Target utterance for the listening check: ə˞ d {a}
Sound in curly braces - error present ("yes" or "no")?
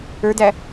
yes